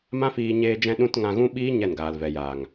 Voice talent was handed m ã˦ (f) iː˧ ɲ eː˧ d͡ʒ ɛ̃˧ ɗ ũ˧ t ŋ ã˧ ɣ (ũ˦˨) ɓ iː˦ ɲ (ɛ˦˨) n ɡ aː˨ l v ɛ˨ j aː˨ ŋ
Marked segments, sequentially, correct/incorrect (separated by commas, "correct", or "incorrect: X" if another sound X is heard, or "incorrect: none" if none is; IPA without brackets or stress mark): correct, incorrect: ũ˦, correct